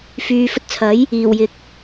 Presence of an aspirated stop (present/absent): present